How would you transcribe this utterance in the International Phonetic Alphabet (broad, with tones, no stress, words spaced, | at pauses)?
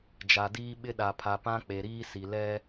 d͡ʒa˨diː˦ɓɪ˦ ɗa˨pʰa˨pã˦ k͡pe˨ɾiː˦si˨ lɛ˦